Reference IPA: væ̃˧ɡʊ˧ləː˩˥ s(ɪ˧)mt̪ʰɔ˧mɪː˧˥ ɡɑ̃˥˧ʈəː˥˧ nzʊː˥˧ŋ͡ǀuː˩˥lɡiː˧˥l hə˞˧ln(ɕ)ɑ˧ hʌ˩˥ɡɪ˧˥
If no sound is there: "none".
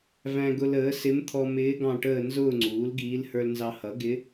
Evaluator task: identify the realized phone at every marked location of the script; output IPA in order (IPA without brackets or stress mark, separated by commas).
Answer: ɪ˧˥, z